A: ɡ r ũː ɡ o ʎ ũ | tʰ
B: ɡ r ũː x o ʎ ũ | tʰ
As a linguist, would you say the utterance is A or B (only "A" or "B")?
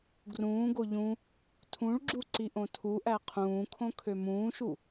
A